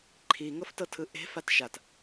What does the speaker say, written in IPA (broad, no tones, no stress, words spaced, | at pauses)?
ǃʰiŋɤftɤtʰɯ ʔe̤fat ʃat